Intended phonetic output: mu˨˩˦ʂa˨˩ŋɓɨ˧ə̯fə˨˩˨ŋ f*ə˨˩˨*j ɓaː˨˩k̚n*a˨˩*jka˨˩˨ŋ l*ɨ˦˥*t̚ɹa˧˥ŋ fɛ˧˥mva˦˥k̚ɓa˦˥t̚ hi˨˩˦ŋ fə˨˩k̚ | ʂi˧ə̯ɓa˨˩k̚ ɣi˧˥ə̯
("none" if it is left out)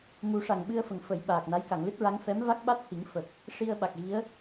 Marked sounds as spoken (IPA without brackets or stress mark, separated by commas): ə˨˩˨, a˧˥, ɨ˦˥